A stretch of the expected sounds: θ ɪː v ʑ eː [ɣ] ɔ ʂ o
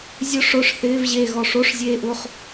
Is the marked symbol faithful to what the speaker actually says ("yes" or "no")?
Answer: yes